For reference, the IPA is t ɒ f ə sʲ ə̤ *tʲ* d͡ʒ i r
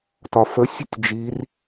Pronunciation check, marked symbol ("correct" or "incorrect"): correct